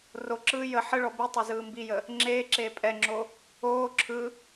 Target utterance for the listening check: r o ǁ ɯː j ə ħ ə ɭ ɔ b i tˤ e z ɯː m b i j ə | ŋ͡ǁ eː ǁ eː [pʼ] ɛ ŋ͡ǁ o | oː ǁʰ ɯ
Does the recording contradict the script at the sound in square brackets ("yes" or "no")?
no